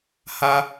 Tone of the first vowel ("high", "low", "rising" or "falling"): high